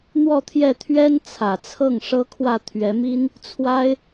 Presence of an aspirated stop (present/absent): present